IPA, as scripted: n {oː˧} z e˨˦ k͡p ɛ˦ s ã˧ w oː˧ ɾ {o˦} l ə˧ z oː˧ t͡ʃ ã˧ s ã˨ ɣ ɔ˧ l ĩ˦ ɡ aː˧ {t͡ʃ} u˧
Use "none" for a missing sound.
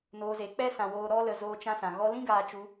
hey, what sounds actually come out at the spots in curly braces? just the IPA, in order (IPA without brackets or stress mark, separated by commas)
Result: oː˧, ɔ˦, t͡ʃ